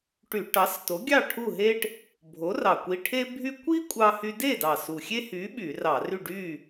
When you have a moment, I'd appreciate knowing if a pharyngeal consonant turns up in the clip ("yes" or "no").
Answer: no